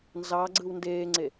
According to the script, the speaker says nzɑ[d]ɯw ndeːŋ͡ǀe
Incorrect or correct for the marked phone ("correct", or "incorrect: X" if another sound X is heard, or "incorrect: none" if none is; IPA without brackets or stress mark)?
incorrect: ɡ͡ǀ